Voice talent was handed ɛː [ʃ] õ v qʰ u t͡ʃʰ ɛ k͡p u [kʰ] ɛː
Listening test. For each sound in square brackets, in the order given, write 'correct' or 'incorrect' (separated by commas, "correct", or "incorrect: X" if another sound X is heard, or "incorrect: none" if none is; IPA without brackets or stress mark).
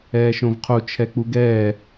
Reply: correct, incorrect: ɡ